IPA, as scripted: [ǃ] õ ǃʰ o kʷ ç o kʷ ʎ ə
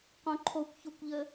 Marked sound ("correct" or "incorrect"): incorrect